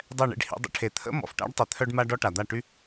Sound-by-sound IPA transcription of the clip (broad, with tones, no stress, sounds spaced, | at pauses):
dˤ ɛ˦˨ ɳ ḛ˧ ɖ h ḭ˧ dˤ ə̰˧ ʈʰ e˨ t̪ʰ ə̰˦ m ɔ̰˨ f ʈ a̰˦ ɖ tˤ e˧ t̪ʰ œ˦ ɖ m a˦ ɖ ɔ˦ ʈ a˨ d̪ a˦˨ ʈ y˦